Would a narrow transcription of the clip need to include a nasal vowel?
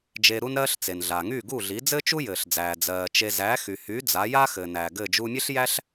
no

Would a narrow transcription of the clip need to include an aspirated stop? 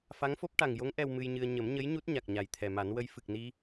yes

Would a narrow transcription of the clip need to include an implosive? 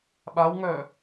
yes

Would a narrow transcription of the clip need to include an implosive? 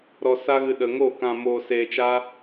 yes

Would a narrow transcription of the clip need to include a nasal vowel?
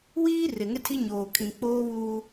yes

